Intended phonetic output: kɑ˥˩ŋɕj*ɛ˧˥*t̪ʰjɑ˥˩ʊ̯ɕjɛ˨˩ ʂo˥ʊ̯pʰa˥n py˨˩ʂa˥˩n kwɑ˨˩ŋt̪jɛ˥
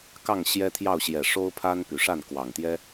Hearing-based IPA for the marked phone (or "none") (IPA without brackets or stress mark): ɛ˥